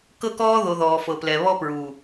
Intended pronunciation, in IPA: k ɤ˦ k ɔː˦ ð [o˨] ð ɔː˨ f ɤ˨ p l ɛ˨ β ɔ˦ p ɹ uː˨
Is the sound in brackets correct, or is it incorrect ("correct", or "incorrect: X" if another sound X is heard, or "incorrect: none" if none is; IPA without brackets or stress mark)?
correct